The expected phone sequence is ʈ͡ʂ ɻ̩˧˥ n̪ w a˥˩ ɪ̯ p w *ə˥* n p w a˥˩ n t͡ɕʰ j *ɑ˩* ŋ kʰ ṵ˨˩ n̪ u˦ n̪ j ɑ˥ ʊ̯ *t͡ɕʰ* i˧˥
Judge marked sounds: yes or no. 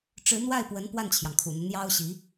no, yes, no

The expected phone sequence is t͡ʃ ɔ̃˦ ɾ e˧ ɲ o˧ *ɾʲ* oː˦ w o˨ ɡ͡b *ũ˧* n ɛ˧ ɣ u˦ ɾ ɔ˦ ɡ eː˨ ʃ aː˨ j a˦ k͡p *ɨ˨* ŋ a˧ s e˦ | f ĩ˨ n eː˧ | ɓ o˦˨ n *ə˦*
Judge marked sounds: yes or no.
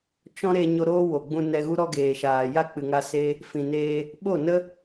no, yes, yes, yes

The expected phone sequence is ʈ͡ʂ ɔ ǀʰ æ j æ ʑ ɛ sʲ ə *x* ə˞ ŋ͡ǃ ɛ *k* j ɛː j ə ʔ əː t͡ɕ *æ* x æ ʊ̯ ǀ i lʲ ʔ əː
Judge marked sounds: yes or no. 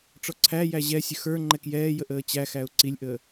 yes, yes, yes

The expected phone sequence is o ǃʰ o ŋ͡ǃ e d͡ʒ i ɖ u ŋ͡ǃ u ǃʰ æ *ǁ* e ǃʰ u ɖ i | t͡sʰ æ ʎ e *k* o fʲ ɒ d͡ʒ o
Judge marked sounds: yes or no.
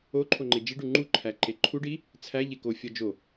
no, yes

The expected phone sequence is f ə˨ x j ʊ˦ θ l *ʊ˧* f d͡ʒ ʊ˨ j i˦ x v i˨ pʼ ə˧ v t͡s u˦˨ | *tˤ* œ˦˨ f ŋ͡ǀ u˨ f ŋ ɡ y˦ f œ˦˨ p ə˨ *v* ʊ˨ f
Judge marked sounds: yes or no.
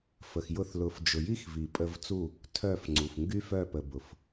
yes, no, no

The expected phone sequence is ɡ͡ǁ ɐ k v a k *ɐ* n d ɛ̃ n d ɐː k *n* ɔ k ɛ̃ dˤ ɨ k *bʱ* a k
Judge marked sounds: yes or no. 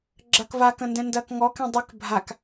no, no, yes

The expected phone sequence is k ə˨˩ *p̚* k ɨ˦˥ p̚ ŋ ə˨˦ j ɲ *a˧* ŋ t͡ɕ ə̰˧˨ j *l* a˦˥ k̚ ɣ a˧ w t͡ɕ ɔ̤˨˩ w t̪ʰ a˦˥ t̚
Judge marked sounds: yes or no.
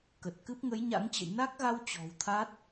no, no, no

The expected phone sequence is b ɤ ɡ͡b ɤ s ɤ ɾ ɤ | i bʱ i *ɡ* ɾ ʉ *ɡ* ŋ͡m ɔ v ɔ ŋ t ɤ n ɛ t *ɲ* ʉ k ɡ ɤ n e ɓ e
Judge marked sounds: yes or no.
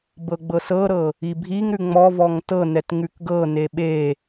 no, no, no

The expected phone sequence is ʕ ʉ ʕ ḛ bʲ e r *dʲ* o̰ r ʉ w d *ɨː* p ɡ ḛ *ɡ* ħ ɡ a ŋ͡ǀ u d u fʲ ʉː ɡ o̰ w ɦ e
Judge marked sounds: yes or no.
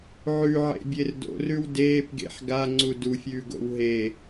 no, no, no

